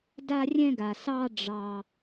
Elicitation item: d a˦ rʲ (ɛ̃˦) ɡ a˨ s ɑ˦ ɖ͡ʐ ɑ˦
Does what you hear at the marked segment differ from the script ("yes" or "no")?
no